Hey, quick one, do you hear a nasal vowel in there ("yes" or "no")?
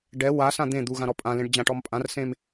yes